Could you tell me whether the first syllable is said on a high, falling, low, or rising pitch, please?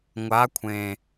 rising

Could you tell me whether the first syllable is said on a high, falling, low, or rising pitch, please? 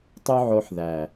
high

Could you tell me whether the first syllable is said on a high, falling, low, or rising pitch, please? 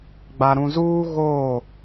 low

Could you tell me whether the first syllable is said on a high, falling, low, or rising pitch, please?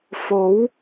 rising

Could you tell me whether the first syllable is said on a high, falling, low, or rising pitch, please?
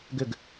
falling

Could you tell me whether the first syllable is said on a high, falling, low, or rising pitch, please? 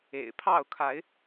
low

